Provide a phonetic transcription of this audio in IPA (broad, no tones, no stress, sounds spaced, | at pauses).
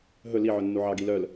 ɦ ɵ l i ʕ œ nː u ʕ ɑ ɡ i l œ l